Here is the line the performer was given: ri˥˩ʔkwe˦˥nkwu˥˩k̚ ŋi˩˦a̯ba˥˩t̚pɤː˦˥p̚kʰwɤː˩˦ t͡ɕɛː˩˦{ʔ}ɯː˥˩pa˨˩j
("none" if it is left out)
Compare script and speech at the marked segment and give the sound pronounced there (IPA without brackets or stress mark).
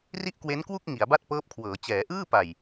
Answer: ʔ